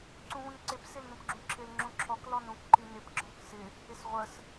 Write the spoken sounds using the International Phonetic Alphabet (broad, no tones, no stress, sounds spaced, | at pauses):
ǀ ũ v ũ n ǀ ɪ p s ɪ l n ũ p ɡ͡ǁ ũ ǁʰ ɪ l ŋ͡ǁ ũ ǁʰ ɔ k l ɔ n ũ k ǃ i n ɪ p ɡ͡ǁ ɔ̃ k s ɪ | ɪ s ʁʷ ə s